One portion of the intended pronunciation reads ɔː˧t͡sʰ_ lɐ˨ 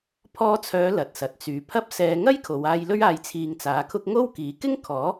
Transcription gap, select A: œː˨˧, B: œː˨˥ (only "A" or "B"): A